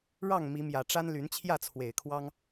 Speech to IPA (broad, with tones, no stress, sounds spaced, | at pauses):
ɻ ɑ˥˨ ŋ m i˨˦ m j ä˨˩ ʈ͡ʂ a˦ n l y˨˦ n t͡ɕʰ j ä˥˨ t͡sʰ w e˨˩ ɪ̯ kʰ w ɑ˦ ŋ